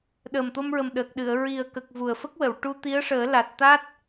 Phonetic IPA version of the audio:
ɗ əː˨˩ m t̪ o˧ m ɹ ə˨˩ m ɗ əː˨˩ k̚ ɗ ɨ˨˩˨ ə̯ ɹ i˨˩ ə̯ k ə˨˩ k̚ v u˨˩ ə̯ f ə˦˥ k̚ w ə˨˩˨ w ʈ u˧ t̪ i˧˥ ə̯ ʂ əː˨˩˦ l a˨˩ t̚ t̪ a˦˥ t̚

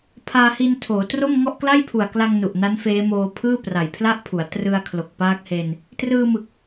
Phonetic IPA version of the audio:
pʰ aː˧ h i˧ n tʰ oː˩˦ t r o˥˩ m ŋ ɔ˥˩ ʔ k l a˥˩ j pʰ u˨˩ a̯ k l a˧ ŋ n u˨˩ ʔ n a˦˥ n f eː˦˥ m oː˧ pʰ ɯː˥˩ p r a˨˩ j pʰ l a˥˩ ʔ pʰ u˩˦ a̯ t r ɯ˧ a̯ kʰ l o˨˩ k̚ p aː˦˥ k̚ h e˧ n | t r ɯː˧ m ɯ˨˩ k̚

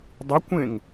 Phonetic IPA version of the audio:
dˤ ɨ kʷ ẽ ŋ

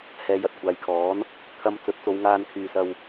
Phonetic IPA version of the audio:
h ɛː˨˧ j ɐ˨ t̚ kʷʰ aː˨˧ j kʰ ɔː˨˥ n | kʰ ɐ˧ m t͡s ɵ˨˥ t̚ t͡s o˨˧ w ŋ aː˧ n kʰ yː˨ s ɐ˧ w

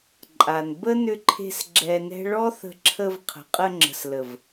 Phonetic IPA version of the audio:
ǃʼ a˨ n b ə˦ n ʏ˧ ǃʰ e̤˧ s ɡ͡ǁ ɛ˧ n ɛ̤˦ ɭ ɔ˦ θ ə̤˧ ǁʰ ə˧ v qʰ ə̤˨ qʼ ə˧ ŋ͡ǁ ə̤˨ s l ə˨ v

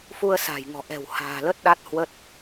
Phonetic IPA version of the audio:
f u˧ ə̯ s a̤ː˨˩ j ŋ ɔ̤˨˩ ʔ ɛ̤˨˩ w h a̤ː˨˩ l ə˦˥ t̚ ɗ a˦˥ t̚ h w ə˦˥ t̚

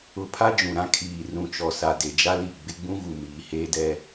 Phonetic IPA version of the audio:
ʊ˨ pʰ a˦ d͡ʒ ũ˨ ɾ ã˦ kʰ iː˨ r ũ˨ t͡ʃ ɔ˨ s a˨ d e˨ d͡ʒ a˦ l i˦˨ ɡ͡b ɪ˦ ɡ͡b ũ˦ ɣ u˨ m iː˨ h eː˦ d ɛ˦

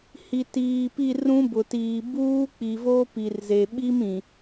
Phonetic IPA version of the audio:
h i˨ t iː˨ p i˦˨ r ũ˦ b ʊ˨ t iː˨ b uː˦ k͡p i˨ v o˦ p i˨ r z e˨ ɓ i˦ m ĩ˨

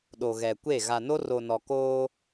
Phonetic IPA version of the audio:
ɗ o˨ ɣ ɛ˨ kʷ e˦˨ ɣ a˨ n o˦ r o˨ n ɔ˨ k oː˦

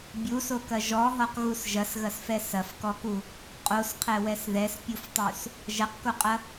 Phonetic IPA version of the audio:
bʲ u s o k ɐ ʒ ɔ ɦ ɔ q ɣ u s ʒ ɐ s ɣ ɐ s f ɛ s ɐ f k ɔ k u | qʼ o s qʰ ɛ w ɛ s ð ɛ s pʲ u f tˤ u s | ʒ ɐ q k o qʼ ɐ

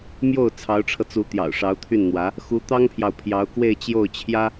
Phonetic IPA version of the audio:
m j o˥˩ ʊ̯ t͡sʰ ɑ˧˥ ʊ̯ ʈ͡ʂʰ ɤ˧ t͡s u˧˥ t̪ j ɑ̰˨˩ ʊ̯ ʂ ɑ˧˥ ʊ̯ t̪ʰ y˥˩ n n̪ w ä˧˥ | x u˧˥ t̪ ɑ˥ ŋ pʰ j ɑ˨ ʊ̯ pʰ j ɑ˧˥ ʊ̯ k w e˥˧ ɪ̯ t͡ɕ j o˥˩ ʊ̯ t͡ɕʰ j ä˥

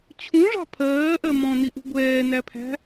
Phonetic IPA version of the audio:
t͡ɕʰ ũ ʐ ɑ̤ pʰ ɜː ʔ ɜ m ɔ̃ n i ʔ ṳ ɡʷ ɛː n æ pʰ æ̤

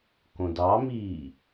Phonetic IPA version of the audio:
k õ d ɑ m iː

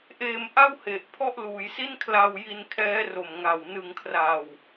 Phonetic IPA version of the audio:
ʔ eː˧ m ʔ a˥˩ w h e˨˩ ʔ pʰ ɔ˥˩ ʔ l uː˩˦ j s i˥˩ n kʰ l a˧ w j i˧ n kʰ ɛː˦˥ r o˨˩ m ŋ a˨˩ w n ɯ˨˩ ŋ kʰ r a˨˩ w

